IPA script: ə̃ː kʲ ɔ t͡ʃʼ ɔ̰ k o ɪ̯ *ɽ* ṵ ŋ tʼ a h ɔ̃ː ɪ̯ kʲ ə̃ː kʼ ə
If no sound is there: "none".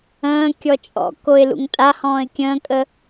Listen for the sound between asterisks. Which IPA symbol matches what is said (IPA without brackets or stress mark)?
l